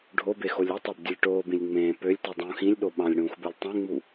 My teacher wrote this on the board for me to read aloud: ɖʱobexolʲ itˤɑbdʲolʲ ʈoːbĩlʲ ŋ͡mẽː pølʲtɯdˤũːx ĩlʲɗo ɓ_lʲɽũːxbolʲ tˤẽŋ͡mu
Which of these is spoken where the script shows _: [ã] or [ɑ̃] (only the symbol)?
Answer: ɑ̃